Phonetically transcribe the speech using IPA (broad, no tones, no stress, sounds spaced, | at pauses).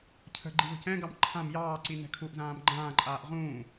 cʰ ə̤ ɡ͡ǃ i β ə̤ c ɛ̃ ɡ ɑ m ǃʰ ã m j ɑː ǀ i n ɛ̤ kʰ u ʔ z ãː m ɡ͡ǃ ãː ǃʼ aː ʔ ʁ ũː